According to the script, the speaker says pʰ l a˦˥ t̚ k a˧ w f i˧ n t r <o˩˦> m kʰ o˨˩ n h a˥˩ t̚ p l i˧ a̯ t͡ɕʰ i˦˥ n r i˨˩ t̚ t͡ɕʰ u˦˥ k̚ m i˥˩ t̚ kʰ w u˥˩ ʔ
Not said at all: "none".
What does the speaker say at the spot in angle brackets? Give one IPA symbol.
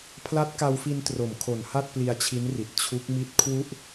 o˩˦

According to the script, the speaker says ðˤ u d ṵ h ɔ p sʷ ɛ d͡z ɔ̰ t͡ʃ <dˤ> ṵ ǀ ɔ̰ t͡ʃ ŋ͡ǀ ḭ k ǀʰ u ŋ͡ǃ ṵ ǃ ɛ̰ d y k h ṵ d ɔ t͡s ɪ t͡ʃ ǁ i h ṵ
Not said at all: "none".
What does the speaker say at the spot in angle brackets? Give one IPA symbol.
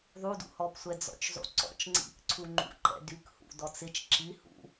zˤ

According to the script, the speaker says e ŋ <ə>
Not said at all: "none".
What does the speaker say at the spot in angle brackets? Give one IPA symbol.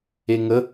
ə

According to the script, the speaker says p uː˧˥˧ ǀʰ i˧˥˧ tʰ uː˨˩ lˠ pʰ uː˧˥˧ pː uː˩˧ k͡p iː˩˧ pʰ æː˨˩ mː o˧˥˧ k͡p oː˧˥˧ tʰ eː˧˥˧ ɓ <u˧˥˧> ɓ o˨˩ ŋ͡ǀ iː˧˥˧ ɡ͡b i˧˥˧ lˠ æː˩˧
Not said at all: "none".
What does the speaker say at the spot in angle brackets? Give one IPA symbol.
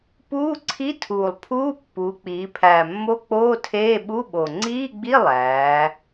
u˧˥˧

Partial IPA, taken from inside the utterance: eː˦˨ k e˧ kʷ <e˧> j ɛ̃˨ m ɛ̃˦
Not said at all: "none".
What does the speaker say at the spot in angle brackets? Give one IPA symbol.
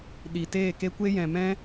e˦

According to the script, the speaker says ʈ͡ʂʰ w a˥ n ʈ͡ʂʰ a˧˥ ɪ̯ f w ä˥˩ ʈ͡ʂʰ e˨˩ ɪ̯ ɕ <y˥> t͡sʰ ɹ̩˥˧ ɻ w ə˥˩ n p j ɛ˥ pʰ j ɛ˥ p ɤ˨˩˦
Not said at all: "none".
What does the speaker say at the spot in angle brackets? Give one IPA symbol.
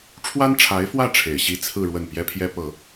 i˥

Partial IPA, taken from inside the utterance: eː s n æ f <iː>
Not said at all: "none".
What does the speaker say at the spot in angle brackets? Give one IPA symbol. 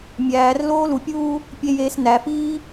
iː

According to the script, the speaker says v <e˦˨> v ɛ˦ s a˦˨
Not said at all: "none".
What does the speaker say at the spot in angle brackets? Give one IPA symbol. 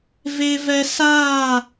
e˦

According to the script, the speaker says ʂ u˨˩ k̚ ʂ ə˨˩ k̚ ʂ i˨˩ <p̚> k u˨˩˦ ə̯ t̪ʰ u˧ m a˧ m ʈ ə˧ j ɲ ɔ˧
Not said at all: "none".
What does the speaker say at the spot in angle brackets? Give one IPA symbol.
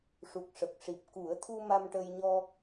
p̚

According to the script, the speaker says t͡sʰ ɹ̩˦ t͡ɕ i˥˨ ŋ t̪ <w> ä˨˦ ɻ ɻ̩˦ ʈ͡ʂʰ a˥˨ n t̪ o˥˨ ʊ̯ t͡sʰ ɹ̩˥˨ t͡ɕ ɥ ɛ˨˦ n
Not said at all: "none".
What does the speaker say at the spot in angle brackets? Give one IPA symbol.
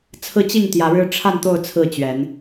j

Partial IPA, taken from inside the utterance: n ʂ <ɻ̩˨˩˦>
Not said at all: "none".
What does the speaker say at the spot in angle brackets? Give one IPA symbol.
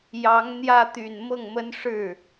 ɻ̩˥˩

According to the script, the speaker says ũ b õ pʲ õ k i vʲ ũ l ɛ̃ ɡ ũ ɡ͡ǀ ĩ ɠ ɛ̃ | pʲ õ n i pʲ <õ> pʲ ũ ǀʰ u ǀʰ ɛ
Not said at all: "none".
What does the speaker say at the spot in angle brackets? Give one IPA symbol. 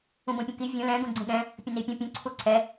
õ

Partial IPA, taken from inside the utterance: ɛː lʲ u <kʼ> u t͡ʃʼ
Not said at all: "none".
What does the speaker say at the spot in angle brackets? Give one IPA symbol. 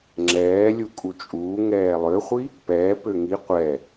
kʼ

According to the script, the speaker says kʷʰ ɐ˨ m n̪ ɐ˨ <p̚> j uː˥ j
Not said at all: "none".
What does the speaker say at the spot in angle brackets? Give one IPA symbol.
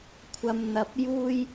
p̚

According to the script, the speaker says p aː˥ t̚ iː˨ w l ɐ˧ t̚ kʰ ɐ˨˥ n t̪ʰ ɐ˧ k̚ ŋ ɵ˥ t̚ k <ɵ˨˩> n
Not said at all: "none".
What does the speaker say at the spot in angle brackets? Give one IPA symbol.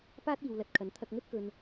ɵ˨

